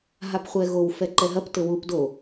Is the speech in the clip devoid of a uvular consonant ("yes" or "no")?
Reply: no